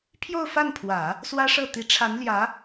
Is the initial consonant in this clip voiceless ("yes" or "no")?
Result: yes